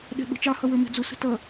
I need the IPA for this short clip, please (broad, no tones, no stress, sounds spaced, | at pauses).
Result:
ɗ ɛ̤ ɓ ə̤ t͡ʃ ɑ h ʌ w ə˞ m ɛ̤ d͡z ʊ s ə̤ t ʌ